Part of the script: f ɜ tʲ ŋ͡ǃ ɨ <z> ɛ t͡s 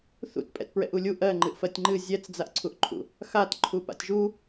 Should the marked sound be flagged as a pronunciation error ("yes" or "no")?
yes